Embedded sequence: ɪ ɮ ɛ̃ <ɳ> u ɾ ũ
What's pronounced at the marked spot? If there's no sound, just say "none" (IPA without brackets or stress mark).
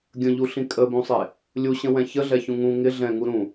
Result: ŋ